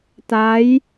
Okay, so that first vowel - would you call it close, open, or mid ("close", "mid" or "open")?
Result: open